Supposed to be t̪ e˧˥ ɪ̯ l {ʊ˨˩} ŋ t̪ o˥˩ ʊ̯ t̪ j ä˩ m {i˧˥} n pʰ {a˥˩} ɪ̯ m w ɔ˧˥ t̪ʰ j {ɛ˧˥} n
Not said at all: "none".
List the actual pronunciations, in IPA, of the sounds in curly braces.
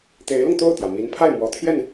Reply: ʊ˧, i˧˥, a˥˩, ɛ˥˩

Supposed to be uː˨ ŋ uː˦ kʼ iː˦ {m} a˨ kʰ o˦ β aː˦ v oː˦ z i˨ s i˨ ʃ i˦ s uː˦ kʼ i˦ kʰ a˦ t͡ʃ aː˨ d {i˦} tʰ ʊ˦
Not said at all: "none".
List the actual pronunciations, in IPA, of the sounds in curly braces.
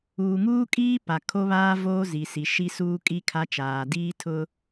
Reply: p, iː˦

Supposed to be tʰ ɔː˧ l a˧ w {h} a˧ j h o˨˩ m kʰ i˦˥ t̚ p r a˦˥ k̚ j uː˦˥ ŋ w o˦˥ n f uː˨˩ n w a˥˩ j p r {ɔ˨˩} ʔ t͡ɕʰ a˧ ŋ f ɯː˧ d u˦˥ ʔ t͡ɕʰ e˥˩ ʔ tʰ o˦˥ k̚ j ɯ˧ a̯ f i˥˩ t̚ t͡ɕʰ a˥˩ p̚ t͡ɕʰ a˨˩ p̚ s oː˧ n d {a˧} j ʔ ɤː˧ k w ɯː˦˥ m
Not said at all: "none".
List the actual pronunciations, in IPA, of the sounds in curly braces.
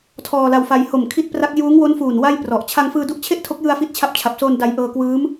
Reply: f, ɔ˨˩, a˧

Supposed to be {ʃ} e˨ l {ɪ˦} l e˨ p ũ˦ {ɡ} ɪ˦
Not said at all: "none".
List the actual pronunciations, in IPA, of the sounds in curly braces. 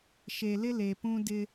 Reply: ʃ, ɪ˦, d

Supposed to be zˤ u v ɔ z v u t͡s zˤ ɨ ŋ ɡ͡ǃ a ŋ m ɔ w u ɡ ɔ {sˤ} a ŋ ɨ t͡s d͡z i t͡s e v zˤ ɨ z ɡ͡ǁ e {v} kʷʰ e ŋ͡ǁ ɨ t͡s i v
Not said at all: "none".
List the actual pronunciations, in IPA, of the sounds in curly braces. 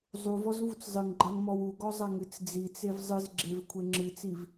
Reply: zˤ, v

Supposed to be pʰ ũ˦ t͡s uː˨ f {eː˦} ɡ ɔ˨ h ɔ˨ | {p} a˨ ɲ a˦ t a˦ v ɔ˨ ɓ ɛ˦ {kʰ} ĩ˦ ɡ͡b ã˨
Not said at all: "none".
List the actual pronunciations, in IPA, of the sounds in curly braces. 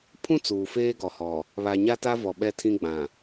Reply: eː˦, β, tʰ

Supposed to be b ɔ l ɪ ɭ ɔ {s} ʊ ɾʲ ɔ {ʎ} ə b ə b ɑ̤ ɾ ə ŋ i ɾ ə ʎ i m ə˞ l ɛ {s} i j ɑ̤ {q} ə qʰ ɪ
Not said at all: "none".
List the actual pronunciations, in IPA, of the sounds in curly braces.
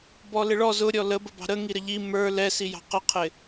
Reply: z, l, s, q

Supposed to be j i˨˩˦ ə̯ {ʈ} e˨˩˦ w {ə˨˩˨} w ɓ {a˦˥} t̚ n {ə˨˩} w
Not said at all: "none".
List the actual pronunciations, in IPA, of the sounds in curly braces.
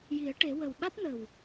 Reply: ʈ, ə˨˩, a˦˥, ə˨˩

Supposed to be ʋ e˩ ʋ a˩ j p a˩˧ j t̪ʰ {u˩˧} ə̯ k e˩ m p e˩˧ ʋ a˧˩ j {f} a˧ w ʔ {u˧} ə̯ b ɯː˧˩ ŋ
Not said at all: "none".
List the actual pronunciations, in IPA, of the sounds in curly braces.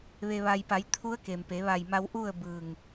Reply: u˧˥, m, u˥˨

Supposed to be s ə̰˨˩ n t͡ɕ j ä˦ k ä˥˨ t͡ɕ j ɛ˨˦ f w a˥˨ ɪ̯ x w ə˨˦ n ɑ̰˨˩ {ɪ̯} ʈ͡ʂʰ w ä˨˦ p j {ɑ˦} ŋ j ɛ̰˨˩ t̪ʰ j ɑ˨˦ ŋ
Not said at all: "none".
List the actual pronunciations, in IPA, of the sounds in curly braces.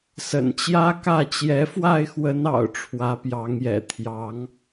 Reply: ʊ̯, ɑ˨˦

